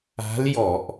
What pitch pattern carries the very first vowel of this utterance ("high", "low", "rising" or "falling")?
rising